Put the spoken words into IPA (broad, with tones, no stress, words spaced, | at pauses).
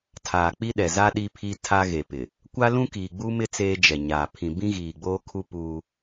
tʰaː˨k͡pi˦ɗɛ˨ za˦ ɗi˦pʰi˦ tʰa˦ɣe˨pɪ˨ | kʷa˦lũ˦kiː˨ ɡ͡bu˦mɪ˦ t͡seː˦d͡ʒɛ˨ɲaː˨ pʰĩ˨bĩ˦ ɣiː˨ɡ͡boː˦kʰu˦ puː˦